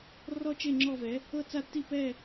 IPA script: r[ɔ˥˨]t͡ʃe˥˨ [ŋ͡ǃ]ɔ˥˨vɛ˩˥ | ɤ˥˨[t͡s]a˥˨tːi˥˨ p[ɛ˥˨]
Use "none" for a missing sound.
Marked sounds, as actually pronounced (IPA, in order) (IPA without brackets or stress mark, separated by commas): ɔ˥˨, ŋ͡ǁ, t͡s, ɛ˥˨